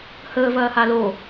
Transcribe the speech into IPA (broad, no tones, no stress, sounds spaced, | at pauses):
h əː v ɐː h a l o